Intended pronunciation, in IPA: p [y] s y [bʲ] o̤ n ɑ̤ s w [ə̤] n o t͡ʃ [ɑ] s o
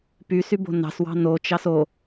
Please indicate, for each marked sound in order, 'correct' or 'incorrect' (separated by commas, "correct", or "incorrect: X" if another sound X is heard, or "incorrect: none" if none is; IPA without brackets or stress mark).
correct, incorrect: b, incorrect: ɑ̤, correct